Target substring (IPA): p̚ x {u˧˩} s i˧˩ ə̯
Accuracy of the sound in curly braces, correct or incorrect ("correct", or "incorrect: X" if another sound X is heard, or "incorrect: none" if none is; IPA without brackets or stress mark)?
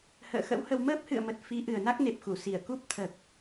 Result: correct